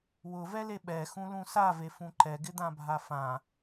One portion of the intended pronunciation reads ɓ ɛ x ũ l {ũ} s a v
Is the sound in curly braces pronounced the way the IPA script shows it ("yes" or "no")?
yes